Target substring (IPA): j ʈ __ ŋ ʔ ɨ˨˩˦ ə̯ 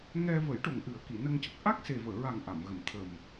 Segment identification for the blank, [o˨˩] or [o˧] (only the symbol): o˨˩